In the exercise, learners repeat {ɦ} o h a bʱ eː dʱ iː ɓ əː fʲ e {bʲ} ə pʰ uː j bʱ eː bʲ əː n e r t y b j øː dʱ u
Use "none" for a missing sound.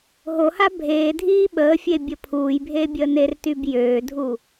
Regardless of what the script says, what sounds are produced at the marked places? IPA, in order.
ɦ, bʲ

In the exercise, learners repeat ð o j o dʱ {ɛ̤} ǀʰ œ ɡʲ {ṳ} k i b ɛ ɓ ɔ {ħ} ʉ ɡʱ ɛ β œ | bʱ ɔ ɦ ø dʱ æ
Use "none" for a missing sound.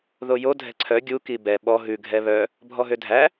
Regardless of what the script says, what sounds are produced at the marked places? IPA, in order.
ɛ̤, u, ɦ

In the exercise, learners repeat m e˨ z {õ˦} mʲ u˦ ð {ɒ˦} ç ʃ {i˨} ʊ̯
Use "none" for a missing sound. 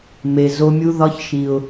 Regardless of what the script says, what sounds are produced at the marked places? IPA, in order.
o˦, ɒ˦, i˨

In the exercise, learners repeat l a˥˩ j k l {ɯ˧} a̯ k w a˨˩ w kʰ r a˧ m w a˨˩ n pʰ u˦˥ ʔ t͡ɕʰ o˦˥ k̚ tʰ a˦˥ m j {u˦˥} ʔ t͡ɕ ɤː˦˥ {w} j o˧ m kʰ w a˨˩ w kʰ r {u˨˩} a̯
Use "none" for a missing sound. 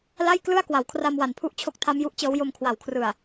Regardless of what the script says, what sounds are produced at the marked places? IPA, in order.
ɯ˥˩, u˦˥, w, ɯ˨˩

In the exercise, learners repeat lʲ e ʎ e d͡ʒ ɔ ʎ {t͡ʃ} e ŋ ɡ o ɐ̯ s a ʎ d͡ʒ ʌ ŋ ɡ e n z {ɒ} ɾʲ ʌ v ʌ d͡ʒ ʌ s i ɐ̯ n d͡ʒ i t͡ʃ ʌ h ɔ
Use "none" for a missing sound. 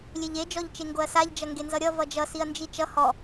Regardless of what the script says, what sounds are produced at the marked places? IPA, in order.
t͡ʃ, ʌ

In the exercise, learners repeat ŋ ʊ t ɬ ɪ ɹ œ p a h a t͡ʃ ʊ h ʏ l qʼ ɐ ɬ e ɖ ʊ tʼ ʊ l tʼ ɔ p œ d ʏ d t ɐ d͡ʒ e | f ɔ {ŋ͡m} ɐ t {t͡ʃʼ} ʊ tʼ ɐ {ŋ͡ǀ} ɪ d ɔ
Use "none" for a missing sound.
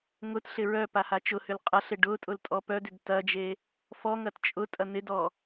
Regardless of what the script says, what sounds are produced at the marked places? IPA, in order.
ŋ, t͡ʃʼ, n̪

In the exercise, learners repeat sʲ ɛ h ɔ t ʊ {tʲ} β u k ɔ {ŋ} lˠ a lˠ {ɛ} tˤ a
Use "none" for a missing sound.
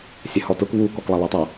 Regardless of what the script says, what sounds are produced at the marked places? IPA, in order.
k, k, ɛ

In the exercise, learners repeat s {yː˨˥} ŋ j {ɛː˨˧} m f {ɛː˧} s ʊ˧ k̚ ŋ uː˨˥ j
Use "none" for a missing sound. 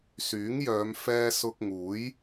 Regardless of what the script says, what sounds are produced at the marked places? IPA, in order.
yː˨˥, œː˨˧, ɛː˧

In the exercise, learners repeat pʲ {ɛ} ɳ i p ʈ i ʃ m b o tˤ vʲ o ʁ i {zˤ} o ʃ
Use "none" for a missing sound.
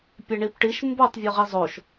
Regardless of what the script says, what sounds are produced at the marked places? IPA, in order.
ɛ, zˤ

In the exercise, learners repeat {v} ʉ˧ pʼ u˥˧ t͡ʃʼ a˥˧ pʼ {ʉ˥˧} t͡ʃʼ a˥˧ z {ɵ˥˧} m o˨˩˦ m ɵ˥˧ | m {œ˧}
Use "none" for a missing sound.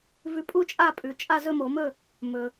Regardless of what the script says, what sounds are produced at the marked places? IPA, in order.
v, ʉ˩˧˩, ɵ˥˧, ɵ˧

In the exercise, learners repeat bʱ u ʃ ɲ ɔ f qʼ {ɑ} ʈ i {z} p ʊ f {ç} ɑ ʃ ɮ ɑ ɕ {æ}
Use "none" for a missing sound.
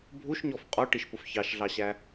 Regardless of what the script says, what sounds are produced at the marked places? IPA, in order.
ɔ, ʃ, ç, æ

